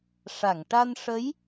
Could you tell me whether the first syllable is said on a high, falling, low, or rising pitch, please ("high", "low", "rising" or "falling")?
low